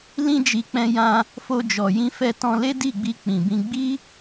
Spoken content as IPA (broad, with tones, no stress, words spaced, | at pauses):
lĩ˧d͡ʒi˨ k͡pɛ̃˧jã˧ | fo˧d͡ʒɔ˨jĩ˧fɛ˧ tɔ̃˧le˦di˦˨ɡ͡bi˧ k͡pĩ˨bĩ˧ ɡ͡bi˦